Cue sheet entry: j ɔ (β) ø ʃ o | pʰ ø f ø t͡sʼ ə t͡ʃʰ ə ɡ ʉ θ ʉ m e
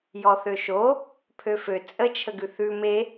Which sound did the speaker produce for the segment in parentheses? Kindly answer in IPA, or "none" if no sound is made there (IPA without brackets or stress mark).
θ